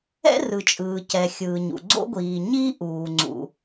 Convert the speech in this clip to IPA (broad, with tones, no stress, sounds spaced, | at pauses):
ɛ̰˥ r ɯ˩ t͡ʃʼ ɯː˩ c ɛ˩ xʲ ɯː˩ ɲ ṵ˩ ɡ͡ǀ o̰˥ ɡʷ iː˩ ɲ iː˥ ʔ uː˩ ŋ͡ǀ ṵ˩